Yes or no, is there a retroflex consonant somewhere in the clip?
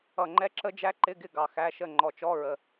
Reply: no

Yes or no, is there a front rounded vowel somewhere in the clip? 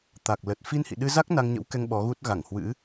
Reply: no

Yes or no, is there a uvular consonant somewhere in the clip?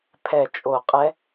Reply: yes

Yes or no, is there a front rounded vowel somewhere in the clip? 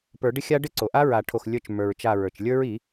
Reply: no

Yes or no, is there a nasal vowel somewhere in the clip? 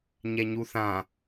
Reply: yes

